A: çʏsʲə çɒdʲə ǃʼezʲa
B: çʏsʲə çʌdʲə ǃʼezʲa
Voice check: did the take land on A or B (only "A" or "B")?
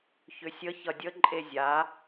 B